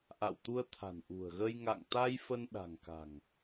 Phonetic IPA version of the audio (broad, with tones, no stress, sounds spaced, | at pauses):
ʔ a̰˧˨ w t̪ u˧ ə̯ t̪ʰ a̤˨˩ n ʔ ṳ˨˩ ə̯ ɣ ə˧ j ŋ a̰˧˨ ŋ t̪ a˧ j f ə˧ n ɗ a̤˨˩ ŋ k a̤˨˩ ŋ